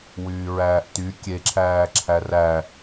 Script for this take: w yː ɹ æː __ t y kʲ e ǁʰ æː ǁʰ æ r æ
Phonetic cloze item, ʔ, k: ʔ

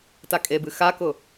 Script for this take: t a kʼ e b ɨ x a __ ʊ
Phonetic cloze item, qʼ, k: k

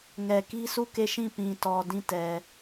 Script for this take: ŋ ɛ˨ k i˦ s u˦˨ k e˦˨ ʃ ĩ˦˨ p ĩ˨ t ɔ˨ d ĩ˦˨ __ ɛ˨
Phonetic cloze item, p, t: t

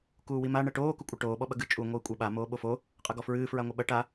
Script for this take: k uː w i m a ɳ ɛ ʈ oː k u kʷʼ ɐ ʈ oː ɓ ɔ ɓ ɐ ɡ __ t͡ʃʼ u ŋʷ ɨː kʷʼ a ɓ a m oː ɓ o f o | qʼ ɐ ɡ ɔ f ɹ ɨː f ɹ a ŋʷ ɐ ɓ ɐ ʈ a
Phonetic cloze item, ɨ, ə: ɨ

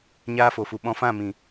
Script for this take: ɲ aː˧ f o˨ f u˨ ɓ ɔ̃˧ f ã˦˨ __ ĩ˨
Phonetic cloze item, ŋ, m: m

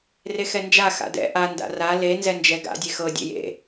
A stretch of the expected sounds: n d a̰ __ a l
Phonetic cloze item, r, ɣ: r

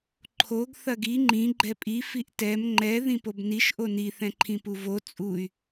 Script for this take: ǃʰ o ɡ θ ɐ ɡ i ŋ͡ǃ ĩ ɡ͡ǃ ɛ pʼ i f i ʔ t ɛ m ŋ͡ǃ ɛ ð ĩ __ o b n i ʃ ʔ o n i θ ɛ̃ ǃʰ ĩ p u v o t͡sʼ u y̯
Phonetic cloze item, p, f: p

